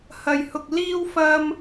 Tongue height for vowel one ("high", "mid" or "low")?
low